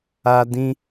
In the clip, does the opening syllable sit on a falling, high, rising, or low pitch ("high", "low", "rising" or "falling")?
high